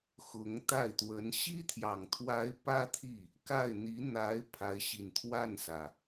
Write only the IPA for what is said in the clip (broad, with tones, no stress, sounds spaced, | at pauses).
x ʊ˧˥ ŋ t̪ a˥˩ ɪ̯ t̪ w ə˧˥ n ɕ i˥ t̪ʰ j ɑ˨˩ ŋ t̪ʰ w a˧˥ ɪ̯ p ä˥ t̪ʰ i˥˩ | k a˥˩ ɪ̯ n̪ i˧˥ n̪ a˧˥ ɪ̯ pʰ a˧˥ ɪ̯ ɕ i˨˩ n t̪ʰ w a˥˩ n s ä˩